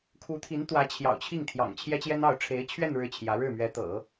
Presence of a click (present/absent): absent